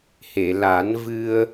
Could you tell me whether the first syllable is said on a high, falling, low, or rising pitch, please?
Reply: low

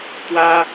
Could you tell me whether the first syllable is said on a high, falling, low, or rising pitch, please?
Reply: high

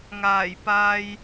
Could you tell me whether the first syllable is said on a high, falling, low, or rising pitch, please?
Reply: low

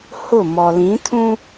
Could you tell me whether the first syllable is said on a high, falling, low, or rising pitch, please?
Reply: falling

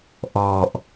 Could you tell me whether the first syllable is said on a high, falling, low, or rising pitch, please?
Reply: low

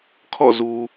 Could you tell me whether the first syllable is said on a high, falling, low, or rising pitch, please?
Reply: falling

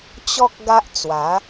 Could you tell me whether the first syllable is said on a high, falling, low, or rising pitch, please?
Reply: high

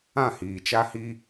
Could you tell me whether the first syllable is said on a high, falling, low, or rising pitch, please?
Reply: falling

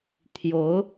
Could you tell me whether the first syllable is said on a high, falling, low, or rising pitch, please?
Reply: rising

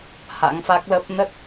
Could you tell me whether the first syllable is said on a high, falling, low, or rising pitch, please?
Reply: rising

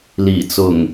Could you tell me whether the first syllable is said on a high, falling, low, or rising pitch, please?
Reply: low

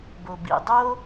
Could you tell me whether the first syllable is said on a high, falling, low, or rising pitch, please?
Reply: low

